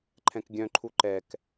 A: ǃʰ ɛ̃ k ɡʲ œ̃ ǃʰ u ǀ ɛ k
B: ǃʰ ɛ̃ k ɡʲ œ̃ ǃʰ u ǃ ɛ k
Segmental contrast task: B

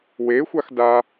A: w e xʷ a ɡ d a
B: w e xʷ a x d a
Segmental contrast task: B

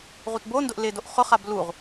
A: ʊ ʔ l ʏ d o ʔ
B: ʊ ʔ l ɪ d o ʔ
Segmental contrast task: B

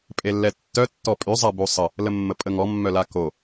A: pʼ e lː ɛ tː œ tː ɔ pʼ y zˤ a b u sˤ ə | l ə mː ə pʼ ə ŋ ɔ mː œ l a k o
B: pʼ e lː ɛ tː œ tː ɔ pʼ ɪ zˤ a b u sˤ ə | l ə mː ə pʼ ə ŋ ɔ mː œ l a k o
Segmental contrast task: A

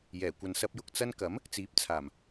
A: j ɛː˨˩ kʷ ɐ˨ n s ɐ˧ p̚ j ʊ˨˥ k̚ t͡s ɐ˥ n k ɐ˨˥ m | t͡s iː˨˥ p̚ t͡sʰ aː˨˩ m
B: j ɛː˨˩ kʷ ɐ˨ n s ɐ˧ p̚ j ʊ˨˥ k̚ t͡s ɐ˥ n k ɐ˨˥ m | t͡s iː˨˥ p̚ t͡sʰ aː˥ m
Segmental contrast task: A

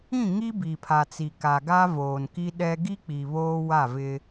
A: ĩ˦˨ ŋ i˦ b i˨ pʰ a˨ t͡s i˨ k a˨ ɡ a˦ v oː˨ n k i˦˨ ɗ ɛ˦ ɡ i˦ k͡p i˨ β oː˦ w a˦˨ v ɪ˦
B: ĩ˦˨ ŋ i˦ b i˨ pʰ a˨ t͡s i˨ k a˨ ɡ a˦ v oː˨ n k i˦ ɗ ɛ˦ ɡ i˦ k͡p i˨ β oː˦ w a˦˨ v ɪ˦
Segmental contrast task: B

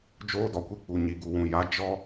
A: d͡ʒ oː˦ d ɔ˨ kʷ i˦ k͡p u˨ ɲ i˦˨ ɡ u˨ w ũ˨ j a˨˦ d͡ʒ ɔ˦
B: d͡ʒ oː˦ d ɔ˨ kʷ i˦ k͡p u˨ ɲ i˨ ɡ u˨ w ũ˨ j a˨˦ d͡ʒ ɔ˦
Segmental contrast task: B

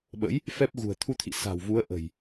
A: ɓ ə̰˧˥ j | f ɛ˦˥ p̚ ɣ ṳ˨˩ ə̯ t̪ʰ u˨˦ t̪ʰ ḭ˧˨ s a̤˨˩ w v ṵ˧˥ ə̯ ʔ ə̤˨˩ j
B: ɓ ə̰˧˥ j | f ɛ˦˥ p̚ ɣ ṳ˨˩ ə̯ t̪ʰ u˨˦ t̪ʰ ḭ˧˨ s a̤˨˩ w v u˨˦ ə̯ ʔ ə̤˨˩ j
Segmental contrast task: B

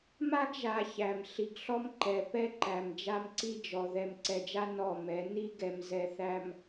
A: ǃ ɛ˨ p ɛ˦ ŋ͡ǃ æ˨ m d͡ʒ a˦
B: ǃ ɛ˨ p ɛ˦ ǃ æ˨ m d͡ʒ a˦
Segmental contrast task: B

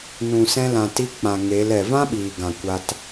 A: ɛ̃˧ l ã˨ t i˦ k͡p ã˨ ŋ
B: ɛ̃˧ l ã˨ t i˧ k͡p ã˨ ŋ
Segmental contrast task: B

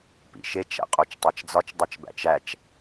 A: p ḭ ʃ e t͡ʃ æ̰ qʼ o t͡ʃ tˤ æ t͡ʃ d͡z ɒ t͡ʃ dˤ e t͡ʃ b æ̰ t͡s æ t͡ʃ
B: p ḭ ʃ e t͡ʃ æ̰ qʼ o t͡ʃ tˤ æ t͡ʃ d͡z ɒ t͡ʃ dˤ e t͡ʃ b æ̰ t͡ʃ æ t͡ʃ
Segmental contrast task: B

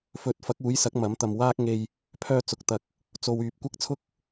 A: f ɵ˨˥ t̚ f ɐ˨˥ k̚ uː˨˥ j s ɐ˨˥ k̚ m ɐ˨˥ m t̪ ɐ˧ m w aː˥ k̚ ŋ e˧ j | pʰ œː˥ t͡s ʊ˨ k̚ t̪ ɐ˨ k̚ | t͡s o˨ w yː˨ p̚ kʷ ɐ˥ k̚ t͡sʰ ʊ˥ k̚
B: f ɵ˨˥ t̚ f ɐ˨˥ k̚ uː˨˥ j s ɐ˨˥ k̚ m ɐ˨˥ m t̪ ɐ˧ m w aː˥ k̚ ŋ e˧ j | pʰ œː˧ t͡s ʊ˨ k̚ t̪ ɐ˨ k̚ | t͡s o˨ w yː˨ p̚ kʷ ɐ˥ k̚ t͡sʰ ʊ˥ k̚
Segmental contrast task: B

